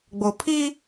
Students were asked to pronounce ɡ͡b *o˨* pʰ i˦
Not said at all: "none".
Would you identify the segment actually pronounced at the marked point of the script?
o˨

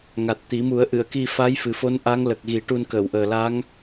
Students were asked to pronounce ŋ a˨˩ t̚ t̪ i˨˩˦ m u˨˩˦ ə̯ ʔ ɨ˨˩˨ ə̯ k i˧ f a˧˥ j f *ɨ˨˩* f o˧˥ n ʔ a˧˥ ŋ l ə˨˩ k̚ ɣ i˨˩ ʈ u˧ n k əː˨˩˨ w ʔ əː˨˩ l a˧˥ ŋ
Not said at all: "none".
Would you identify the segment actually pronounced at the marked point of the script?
ɨ˨˩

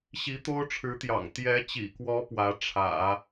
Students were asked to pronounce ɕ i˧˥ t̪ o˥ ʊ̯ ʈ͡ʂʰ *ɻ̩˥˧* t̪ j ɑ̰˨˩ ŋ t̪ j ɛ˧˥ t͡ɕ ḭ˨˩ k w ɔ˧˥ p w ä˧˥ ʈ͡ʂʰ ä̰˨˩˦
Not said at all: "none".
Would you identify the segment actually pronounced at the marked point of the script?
ɻ̩˧˥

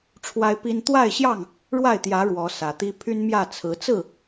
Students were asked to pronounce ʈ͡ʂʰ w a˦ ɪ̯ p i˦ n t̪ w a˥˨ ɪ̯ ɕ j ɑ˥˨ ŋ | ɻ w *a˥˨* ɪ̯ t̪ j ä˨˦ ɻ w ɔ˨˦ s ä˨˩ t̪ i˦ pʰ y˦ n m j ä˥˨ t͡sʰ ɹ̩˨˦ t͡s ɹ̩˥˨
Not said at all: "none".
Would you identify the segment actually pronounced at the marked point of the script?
a˥˨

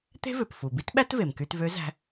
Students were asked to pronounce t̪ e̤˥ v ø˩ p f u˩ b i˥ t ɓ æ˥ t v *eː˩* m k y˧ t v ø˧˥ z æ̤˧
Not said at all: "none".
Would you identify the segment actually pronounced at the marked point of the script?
e˩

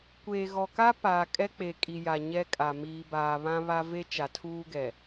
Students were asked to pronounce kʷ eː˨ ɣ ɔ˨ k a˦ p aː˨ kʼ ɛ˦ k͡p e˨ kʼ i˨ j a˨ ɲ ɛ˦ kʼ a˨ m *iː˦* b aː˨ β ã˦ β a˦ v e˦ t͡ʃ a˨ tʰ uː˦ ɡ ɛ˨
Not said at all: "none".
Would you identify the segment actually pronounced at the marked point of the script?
iː˨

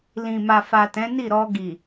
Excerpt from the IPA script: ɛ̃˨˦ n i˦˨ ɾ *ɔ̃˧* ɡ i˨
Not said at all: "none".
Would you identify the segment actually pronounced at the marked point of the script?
ɔ˧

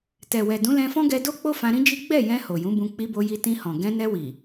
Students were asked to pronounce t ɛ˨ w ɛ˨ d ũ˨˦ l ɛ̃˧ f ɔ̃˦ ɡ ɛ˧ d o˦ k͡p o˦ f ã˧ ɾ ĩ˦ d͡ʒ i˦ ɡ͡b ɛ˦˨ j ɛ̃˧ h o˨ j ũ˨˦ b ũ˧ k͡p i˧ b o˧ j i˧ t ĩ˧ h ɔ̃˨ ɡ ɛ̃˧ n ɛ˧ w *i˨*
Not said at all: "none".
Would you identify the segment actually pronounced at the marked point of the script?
i˨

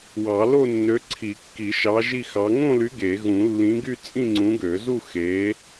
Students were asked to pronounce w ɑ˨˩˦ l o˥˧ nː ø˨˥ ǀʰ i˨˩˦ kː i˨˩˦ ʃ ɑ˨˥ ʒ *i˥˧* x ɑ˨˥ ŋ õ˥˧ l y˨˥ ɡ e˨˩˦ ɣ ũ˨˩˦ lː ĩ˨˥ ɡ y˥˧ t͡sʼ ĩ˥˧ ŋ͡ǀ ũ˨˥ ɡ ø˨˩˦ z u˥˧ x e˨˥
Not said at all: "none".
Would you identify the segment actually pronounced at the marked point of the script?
i˥˧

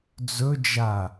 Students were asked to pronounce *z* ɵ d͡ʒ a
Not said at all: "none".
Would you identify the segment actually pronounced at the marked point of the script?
d͡z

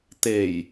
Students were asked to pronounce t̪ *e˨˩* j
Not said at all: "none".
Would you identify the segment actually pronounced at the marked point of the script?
e˨˩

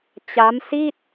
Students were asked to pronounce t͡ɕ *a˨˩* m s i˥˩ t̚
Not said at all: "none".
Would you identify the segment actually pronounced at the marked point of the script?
a˦˥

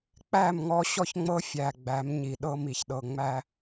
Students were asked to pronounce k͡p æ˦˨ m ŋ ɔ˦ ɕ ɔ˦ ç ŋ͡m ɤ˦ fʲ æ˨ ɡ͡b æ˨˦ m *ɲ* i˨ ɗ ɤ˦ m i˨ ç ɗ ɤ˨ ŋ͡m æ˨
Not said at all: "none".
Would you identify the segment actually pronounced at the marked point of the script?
ɲ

